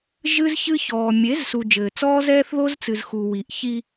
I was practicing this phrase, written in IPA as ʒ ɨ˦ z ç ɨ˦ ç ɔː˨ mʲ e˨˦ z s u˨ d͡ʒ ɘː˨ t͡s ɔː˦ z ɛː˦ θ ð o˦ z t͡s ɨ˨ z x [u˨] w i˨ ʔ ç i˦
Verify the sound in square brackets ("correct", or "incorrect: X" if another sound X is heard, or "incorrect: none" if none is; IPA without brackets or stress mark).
correct